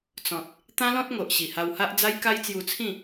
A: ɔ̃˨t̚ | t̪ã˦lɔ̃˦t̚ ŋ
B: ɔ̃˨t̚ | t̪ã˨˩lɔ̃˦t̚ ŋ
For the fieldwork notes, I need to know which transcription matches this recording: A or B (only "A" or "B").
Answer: A